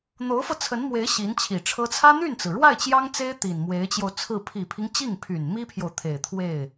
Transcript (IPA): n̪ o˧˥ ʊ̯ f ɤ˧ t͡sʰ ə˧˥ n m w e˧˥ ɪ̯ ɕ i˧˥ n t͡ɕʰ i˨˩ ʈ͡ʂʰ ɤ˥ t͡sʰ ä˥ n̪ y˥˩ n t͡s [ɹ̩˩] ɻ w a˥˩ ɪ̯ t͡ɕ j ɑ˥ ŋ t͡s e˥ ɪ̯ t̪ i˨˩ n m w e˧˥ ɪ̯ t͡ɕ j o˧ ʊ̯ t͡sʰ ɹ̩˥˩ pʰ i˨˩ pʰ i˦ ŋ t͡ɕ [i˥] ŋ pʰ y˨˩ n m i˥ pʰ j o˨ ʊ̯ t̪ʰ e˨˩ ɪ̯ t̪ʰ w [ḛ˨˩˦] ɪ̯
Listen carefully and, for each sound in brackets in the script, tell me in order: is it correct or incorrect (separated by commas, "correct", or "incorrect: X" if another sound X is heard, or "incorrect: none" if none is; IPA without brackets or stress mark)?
correct, incorrect: i˥˩, incorrect: e˥˩